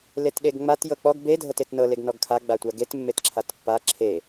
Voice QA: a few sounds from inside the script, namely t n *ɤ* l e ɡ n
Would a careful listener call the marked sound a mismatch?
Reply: no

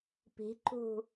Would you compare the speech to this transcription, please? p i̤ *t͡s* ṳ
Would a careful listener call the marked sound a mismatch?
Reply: yes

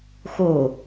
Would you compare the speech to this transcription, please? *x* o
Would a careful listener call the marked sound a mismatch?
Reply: no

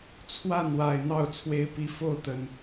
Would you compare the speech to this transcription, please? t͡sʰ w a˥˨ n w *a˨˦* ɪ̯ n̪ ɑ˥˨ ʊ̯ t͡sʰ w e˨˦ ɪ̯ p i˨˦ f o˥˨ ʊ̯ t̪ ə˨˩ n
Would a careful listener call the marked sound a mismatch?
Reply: yes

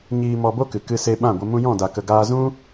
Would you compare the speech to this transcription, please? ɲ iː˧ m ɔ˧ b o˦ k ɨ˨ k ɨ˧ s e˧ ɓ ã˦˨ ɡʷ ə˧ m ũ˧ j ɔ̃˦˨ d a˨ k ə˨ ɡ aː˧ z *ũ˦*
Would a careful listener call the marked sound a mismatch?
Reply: no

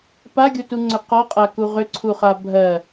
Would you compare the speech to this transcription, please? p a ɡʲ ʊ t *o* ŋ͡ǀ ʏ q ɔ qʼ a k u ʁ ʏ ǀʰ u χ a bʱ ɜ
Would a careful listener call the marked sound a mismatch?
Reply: yes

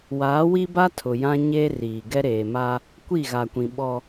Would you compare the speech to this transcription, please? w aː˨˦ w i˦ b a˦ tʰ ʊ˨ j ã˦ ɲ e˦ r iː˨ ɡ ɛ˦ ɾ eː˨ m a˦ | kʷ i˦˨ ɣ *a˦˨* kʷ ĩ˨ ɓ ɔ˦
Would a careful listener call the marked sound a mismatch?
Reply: yes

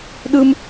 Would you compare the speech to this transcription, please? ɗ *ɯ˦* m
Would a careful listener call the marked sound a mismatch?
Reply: no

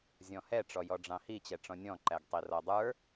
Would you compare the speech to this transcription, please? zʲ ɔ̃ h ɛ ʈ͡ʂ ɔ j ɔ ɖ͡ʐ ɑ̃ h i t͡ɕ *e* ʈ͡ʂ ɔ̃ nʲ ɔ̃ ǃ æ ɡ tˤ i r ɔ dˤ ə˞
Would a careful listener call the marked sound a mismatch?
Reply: yes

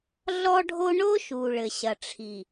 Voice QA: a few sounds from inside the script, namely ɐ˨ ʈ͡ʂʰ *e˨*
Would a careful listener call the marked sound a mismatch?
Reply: yes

